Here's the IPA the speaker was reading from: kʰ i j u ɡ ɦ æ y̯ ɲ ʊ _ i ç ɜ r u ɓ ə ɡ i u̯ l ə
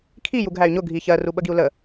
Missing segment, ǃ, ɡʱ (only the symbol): ɡʱ